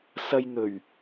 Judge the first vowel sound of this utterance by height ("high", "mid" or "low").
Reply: low